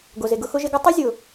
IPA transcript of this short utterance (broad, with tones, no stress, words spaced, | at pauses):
ɡo˨ze˨ɡʊ˧xʊ˧ ʒe˧ɡo˦tˤi˦ zʲʊ˨